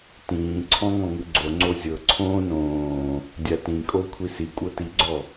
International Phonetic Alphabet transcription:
t ĩː ǀʰ ɔ̃ ŋ ɔ̃ ŋ ɯ ɡ͡ǀ o ŋ͡ǀ o zʲ ɤ ǀʰ õː n õː | dʲ a t ĩ kʼ o kʷʰ i s i kʷʼ ɤ t i ɡ͡ǀ ɔ

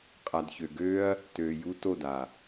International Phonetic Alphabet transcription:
qʼ a˨ d ç ø˨ ɡ øː˦ ɐ̯ | t øː˨ j u˧ t o˦˨ d a˨

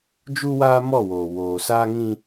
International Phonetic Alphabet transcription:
d͡ʒ u˦ w aː˦ m ɔ˦˨ w oː˨ w oː˨ s aː˦ ŋ ĩ˦

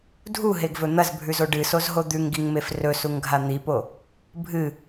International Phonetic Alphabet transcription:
dʱ u ɦ e ɡ v ɵ n̪ ɐ z bʱ ʉ z o ɖ ɨ s o z ɦ o d̪ ʉ ŋ ɡ i ŋ m e f r ɵ s u ŋ ɡʱ a n̪ i p o | bʱ ɨ

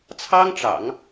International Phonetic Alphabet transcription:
t͡sʰ ɑ˥ ŋ ʈ͡ʂ ɑ̰˨˩˦ ŋ

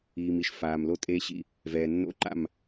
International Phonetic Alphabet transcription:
iː˨ m i˨ ʃ f aː˨ m l o˦ tʼ eː˦ ɕ ḭ˦ | v ɛː˨ nː o̰˦ ǃ a̰˦˨ m

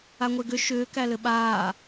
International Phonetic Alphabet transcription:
a ŋʷ e ɡ ʏ ʃ ʏː k æ l ɘ ɓ aː

